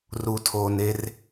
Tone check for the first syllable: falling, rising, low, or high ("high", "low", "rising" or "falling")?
low